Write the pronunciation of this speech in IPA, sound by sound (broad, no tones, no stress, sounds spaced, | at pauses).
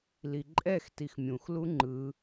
l i ǃʼ ɛ x t i x mʲ ũ x l u ŋ͡ǃ ɯ